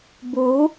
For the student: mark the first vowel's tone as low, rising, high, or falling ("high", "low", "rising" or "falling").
rising